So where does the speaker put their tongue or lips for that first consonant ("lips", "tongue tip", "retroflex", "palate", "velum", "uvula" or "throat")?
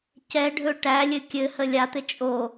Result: palate